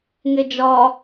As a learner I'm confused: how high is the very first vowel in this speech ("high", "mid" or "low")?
mid